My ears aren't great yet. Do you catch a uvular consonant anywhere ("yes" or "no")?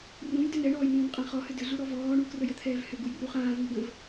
yes